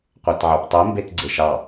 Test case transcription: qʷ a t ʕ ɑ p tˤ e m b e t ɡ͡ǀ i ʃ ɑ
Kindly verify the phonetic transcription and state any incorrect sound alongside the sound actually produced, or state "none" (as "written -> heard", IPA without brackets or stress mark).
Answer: i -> e